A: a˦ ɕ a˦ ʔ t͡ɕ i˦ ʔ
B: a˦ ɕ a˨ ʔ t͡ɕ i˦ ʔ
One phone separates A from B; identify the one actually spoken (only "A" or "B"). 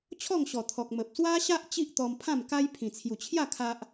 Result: A